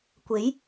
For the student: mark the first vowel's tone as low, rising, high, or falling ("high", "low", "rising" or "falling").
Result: rising